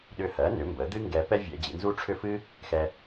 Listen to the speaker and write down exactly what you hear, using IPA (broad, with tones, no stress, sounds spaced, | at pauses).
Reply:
ɗ ʏ˧ h ɜ˩˥ n ʏ˩˥ m b ə˩˥ d̪ ɨ˥ ŋ ɡ ɛ˧ p ɛ˥ vʲ ɛ̰˥ d͡ʑ ḭ˥ n z u˥ ʈ͡ʂʰ ʏ˥˩ f ɨ˥ | x ɛ˧